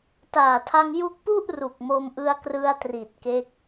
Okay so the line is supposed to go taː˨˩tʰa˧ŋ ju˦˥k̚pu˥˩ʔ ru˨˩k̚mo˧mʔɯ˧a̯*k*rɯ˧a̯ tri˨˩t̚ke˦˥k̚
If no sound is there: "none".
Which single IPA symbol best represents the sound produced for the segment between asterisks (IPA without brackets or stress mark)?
k